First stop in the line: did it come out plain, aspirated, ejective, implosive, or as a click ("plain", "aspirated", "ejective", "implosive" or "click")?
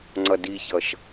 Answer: click